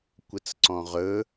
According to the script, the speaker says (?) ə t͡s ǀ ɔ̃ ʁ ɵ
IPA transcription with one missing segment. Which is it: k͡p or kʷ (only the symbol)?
kʷ